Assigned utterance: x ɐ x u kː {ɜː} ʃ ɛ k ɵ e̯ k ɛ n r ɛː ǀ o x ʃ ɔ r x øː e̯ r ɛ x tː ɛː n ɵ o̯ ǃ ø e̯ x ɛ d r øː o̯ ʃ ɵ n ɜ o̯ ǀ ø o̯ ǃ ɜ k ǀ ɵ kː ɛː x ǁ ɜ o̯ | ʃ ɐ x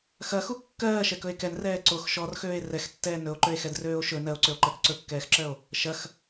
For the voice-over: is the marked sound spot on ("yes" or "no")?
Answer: yes